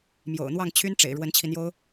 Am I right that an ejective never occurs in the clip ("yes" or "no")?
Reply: yes